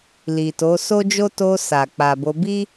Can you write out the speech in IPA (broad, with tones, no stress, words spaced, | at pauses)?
li˨to˨˦ so˦d͡ʒo˦ to˧ sa˨ k͡pa˨bo˧ bi˦